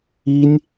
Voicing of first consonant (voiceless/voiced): voiced